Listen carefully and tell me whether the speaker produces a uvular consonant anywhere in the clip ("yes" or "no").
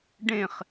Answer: yes